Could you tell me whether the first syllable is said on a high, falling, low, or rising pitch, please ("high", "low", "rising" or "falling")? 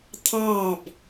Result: falling